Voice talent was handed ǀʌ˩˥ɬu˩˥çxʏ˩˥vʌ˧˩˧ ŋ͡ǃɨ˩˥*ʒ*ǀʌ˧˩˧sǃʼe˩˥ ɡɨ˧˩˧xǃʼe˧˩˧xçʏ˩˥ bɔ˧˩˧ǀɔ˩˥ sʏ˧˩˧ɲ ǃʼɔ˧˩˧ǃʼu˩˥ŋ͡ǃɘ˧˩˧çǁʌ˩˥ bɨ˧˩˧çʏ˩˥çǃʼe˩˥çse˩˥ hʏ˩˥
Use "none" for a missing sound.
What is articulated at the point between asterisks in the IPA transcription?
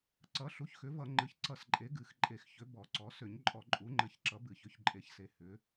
ç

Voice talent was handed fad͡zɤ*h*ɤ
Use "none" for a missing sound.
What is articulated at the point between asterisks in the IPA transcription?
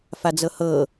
h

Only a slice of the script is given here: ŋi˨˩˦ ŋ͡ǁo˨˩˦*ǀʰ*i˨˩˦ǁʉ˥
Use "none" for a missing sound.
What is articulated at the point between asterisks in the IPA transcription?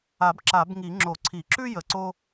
ǀʰ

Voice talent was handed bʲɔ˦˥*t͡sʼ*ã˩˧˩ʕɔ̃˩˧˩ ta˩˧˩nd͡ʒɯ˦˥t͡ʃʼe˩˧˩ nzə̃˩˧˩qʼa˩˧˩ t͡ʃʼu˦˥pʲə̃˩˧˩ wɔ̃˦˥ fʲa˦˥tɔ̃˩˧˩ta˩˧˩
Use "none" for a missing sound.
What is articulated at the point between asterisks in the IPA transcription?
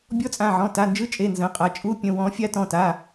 t͡sʼ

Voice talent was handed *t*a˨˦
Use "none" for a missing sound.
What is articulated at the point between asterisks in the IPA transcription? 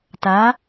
t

